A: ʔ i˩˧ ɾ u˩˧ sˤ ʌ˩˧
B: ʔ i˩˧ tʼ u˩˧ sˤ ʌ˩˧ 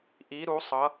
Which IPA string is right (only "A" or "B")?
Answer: A